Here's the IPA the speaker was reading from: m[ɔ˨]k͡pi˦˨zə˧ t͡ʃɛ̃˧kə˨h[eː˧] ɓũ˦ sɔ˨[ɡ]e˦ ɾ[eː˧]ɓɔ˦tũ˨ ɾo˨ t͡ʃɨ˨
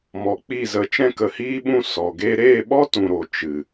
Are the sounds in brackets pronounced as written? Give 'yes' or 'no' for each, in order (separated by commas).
yes, no, yes, no